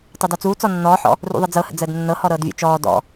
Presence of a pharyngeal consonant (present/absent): present